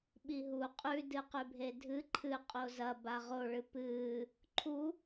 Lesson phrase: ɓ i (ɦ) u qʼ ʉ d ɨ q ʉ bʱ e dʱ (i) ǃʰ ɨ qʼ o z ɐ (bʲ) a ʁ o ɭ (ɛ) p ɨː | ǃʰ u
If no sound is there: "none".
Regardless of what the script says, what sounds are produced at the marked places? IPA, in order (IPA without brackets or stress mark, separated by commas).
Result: ɦ, ɨ, b, ɨ